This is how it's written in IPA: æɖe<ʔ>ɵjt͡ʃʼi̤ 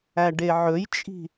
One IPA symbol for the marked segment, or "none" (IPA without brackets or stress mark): ʕ